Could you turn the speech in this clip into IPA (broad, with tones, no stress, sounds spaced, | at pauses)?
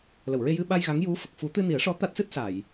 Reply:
l ə˨˩˨ w ɹ e˧ j ɨ˧ ɓ a˧ j ɣ a˧˥ ŋ j u˧˥ f ə˨˩ k̚ f u˨˩˦ t̪ ɨ˧ n i˨˩˦ ə̯ ʂ ɔ˧˥ t̪ a˦˥ t̚ s ɨ˦˥ t̚ s a˨˩˨ j